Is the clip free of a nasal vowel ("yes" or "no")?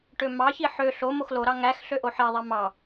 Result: yes